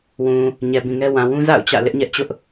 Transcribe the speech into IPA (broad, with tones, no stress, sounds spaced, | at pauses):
w ũ˨ | ɲ ɛ˨ b ĩ˨ ŋ ɛ˦ w ã˨ w ũ˦ z a̰˦˨ ʊ̯ t͡ɕ ä̰˦˨ l ɪ˦ ʔ ɲ ɛ˦ ʔ t͡ɕ ʊ˦ ʔ